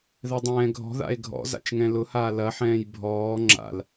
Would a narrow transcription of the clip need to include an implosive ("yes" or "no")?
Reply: no